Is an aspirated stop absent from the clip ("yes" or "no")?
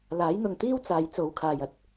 no